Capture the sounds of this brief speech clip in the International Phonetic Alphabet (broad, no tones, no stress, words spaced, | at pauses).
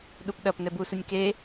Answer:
ɗupɗɐp nɛbusunʲ ke